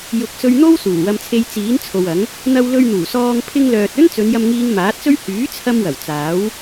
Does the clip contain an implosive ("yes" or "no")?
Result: no